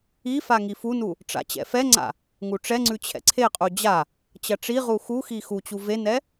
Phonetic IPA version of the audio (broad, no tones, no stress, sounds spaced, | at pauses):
i f a ŋ i f u n u | ʈ͡ʂ a̰ t͡ɕ ɛ̰ f ɛ ŋ͡ǀ a̰ | ŋ u ʈ͡ʂ ɛ ŋ͡ǀ ʉ t͡ɕʰ ɛ̰ ǀʰ e qʼ u d͡ʑ a | t͡ɕ ɐ ʈ͡ʂ i ʁ u x u x i x u t͡ɕ u v e n ɛ